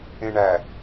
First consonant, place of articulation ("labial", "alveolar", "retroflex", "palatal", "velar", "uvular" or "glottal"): retroflex